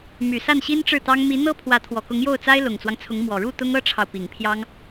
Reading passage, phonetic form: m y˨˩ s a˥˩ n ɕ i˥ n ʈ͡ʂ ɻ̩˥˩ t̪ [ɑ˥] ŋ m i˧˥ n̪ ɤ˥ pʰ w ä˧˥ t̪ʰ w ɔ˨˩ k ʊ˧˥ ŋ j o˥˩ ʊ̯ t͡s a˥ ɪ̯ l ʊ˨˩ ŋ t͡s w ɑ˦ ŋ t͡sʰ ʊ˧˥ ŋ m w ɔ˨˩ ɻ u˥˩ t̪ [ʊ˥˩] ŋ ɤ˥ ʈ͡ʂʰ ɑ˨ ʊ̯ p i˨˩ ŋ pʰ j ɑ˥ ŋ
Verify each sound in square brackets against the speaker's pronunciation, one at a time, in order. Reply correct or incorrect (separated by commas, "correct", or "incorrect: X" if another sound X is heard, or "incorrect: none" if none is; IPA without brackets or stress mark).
correct, incorrect: ʊ˥